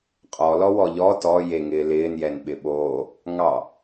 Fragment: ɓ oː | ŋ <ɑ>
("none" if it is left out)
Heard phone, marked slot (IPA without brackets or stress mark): ɑ